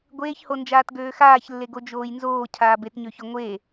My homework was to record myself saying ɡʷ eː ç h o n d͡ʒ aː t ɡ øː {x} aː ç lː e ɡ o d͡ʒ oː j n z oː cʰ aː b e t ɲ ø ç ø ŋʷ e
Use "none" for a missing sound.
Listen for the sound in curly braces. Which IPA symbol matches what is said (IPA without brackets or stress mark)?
x